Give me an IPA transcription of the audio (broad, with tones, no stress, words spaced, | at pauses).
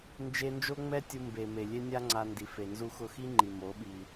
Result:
nd͡ʒe˧ nd͡ʒo˦ŋ͡mɛ˦tʲu˧ mbe˨me˨ lʲe˦nʲa˦ŋ͡ǀa˧ndi˨ fe˨nzu˧xʊ˧xi˦ ŋ͡ǃi˨mo˨˦ɓi˧